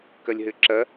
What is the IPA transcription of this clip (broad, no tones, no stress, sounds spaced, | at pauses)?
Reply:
k ɐ lʲ ɦ ɘ ǁ ɐ